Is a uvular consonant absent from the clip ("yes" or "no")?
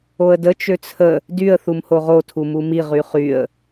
no